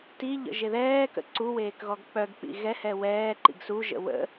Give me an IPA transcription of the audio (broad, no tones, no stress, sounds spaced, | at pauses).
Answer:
t i ʎ ə̰ ʒ e ð ɛː k ə̰ ǀ u w eː k ɣ ɔ ɡ k͡p œ ɡ k͡p ḭ ɣ ɛ h ɛ w ɛː ǃ ḭ ɡ s u ʒ ə̰ w ə̰